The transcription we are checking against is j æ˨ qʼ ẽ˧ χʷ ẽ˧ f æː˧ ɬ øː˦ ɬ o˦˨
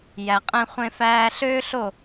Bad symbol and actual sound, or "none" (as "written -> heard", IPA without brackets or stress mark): none